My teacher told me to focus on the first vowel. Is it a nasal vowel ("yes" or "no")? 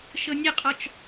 no